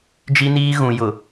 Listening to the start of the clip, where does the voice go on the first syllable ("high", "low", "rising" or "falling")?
high